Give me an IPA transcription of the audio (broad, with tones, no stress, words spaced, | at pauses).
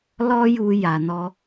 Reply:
lɔ˦ju˧ ja˨nɔ˧